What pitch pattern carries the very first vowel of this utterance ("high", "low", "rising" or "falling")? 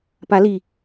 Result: rising